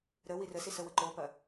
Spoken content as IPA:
ɾə wirəsi səwəǃopɐ

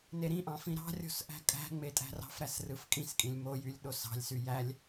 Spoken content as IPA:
neɾĩʔɑ̃ fĩɾɑ̤rʲo̤s ʔæ̤kʼæ̤ŋ͡me tʼæ̤rɑ̤fɾæs rɯfkʼĩskʼĩlʲ mojylʲ ɗosɑ̤lʲsy jælʲ

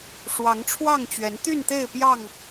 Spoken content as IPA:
ʂwɑ˨˦ŋ ʈ͡ʂʰwɑ˥˨ŋt͡ɕɥɛ˨˦n t̪y˥˨nt̪e˥˨ɪ̯ pjɑ˥˨ŋ

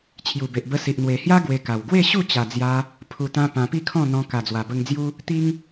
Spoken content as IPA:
t͡ɕʰju˨˩be˨ʔ bə˧si˨ʔ n̪we˨˩hja˦ ɡwe˧ka˨˩w ɡwe˥˧ɕu˥˧t͡ɕa˨˩d͡zja˧ | pʰu˨˩t̪ã˧ pã˧pi˥˧kʰɔ̃˥˧n̪ɔ̃˧ ka˨˩d͡zwa˨˩bə˧ŋd͡zju˦ | t̪i˦ŋ

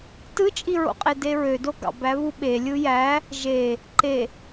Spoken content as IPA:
tɯt͡ʃʼiɹo̰qʼe deɹødo ɡɑ̰bæβu ɓe lʲɯjæ | ʒe | ǃe

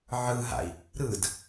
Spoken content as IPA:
ʕɯɦa̰i̯ | ɾɯd

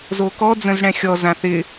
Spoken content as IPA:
zokɔ d͡zə̃zɽɛ̃xʲɔ zãθɪ

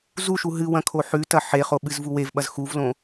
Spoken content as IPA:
zuʃu ɦɨwɐ̃ kʰoħʉtɐ ħeχo ɓɨzvuwevɓɐz xuvlõ

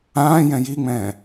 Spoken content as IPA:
ãːjɛ̃ jiŋ͡mɛ̃ː

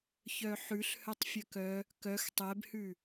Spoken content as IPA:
çœħʉɬ hœtˤfʲœkœ | kœx tˤɛbhʉ

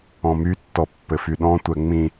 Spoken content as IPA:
ɔ̃mytːɔ pːɘfyɗɔ̃tʷɛ ŋ͡mĩ

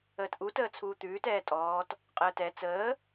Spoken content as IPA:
əːtʔu təːt͡sʰuːt̪ʉːt ɛːtʼɔːt | qʼəːtɛ t͡səː

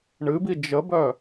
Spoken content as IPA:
ɳɨbi d͡ʒəbœ

